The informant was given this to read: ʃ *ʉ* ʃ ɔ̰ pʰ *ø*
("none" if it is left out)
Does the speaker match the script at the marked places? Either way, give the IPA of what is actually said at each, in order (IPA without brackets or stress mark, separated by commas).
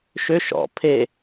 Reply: ø, e